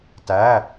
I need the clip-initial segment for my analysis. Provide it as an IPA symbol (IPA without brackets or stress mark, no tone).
t